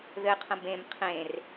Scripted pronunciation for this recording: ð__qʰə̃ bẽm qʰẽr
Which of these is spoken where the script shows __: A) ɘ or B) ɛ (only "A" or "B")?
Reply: A